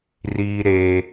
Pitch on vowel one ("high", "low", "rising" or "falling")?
high